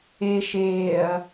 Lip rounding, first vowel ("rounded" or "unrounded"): unrounded